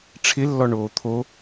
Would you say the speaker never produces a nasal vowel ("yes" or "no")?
yes